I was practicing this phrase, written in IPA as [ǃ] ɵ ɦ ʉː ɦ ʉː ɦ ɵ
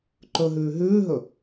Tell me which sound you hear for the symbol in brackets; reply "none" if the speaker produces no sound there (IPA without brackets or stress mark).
ǃ